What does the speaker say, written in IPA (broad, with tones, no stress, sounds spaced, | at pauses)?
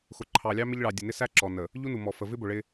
x ʊ˨ ǃʰ ɑ˨ lʲ ɑ˦ m ɪ˦ ʎ ɭ ɑ˨ dʲ ə˨ n ɪ˦ s æ˦ ǁ ɔ˨ n ə˨ | ʎ u˦ n u˨ m ɔ˨ f ə˨ v ɪ˦ b ʊ˨ ɭ ɪ˦